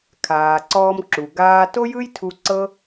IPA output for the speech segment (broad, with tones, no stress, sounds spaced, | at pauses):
kʰ aː˩ ǀ ɔː˧ m ǁ u˩ ɡ aː˧ t o˥ j ɯ˥ j tʰ u˧ ǀ ɤ˥